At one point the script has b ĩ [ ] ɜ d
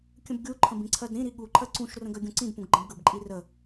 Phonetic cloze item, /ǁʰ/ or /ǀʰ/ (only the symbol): ǀʰ